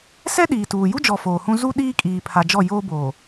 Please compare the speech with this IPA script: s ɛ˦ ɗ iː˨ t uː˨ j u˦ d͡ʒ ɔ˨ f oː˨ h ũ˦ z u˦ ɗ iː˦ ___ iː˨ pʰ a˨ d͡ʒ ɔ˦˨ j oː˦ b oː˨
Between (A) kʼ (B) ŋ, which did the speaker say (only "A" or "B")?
A